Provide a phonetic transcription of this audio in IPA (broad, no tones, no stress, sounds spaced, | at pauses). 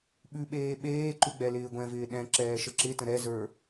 ɓ ʉ ɓ eː ɓ eː ǃ ʉ ɡ͡b ɛ l ɪː ɡʷ ɛ̃ v ɪː ɗ ɛ̃ ǁ ɛː ʃ ə ǁ ɪ t ə̃ ɾ ɛ z ə˞